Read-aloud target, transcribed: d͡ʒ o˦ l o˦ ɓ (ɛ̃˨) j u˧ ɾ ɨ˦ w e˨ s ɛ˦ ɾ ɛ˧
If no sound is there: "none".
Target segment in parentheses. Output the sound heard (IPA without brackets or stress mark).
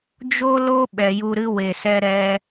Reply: ɛ˨